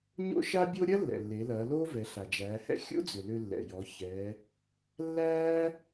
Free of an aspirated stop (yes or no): yes